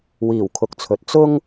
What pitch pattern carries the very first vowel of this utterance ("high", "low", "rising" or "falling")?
low